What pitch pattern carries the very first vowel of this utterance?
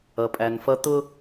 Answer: low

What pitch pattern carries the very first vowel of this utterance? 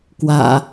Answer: low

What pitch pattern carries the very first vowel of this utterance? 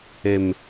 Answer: low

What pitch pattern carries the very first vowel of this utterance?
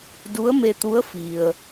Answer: rising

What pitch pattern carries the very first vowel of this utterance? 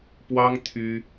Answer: high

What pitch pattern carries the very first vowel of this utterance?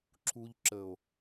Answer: low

